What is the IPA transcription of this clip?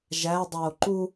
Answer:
ʒ æ dˤ oː ǃ u

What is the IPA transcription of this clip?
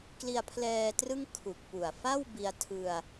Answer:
k l i˧ a̯ pʰ l ɛː˧ t r ɯ˥˩ ŋ kʰ u˨˩ k̚ p u˨˩ a̯ f a˥˩ w b i˧ a̯ tʰ ɯ˧ a̯

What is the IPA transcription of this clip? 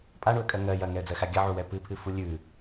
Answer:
pʼ a ɳ u ə̯ kʼ ɜ ŋ ɜ j ɐ ŋ ɛ ə̯ d͡z ɜ x a ɡʲ ɐ ʕ u w ɛ p ɨ pʰ ɨ f u lʲ ʉ

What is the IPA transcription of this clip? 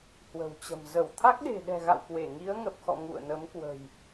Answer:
h w ə̤˨˩ w t͡ɕ ə̤˨˩ m z ə˧˩ w t̪ʰ a˦˥ k̚ ɗ e̤˨˩ ɗ ɛ̤˨˩ ɣ a̰˧˨ w k w e˧˩ ŋ i˨˦ ə̯ ŋ ə˨˩ p̚ x ɔ̰˧˨ ŋ ṵ˧˨ ə̯ n ə˨˦ m k w ə̤˨˩ j

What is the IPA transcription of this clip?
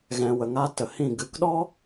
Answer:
ɣ ɛ̃˨ w ə˨ ŋ a˧ t ə˨ h ĩ˦˨ ɡ ɨ˨ k ɗ ɔ˦

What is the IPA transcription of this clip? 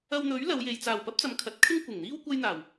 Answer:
ɐ˧ w n̪ ɵ˨˥ ɥ l ɐ˨˧ w j e˨ j t͡s aː˨˩ w p ɐ˥ p̚ t͡s ɐ˨˧ m kʰ ɐ˨ t̚ kʰ ɪ˥ ŋ kʷ ɪ˨˩ ŋ n̪ iː˥ w kʷ ɐ˥ j n̪ aː˨˩ w

